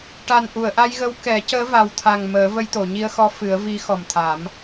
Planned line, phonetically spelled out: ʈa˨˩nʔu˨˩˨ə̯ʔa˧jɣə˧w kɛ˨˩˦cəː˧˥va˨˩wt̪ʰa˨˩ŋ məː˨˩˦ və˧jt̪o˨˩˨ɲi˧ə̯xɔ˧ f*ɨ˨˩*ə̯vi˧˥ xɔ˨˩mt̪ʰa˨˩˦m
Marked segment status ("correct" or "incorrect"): incorrect